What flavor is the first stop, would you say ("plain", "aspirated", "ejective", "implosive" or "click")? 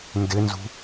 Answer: plain